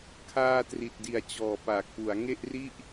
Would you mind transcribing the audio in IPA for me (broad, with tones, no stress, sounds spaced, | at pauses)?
kʰ aː˧ t r i˨˩ t̚ d i˨˩ a̯ t͡ɕ ɔː˨˩ p aː˨˩ k̚ p u˩˦ a̯ ŋ e˥˩ ʔ r i˥˩ ʔ